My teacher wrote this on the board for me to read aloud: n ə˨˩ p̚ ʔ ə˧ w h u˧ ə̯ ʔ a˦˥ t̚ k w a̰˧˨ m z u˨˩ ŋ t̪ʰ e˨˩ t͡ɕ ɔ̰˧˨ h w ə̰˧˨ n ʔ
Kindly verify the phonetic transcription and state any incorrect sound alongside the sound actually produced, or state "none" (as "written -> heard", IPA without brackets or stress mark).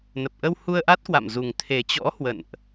ɔ̰˧˨ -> ɔ̰˧˥